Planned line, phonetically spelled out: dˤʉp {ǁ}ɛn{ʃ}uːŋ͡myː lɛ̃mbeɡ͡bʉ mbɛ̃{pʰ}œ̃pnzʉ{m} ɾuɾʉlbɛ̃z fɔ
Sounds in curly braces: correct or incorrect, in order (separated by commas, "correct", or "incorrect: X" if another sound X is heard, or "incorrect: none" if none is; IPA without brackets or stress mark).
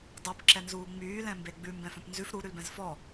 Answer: correct, incorrect: z, incorrect: f, incorrect: f